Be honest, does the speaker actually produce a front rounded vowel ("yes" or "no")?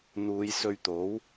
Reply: no